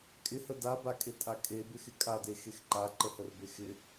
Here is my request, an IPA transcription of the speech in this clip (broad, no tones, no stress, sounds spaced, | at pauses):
kʼ ɪ h ə d a b a kʼ e tʼ a kʼ e b ɪ x ɪ kʼ a d e x e x ǃ a ǃ ə h ə r b e x ɪ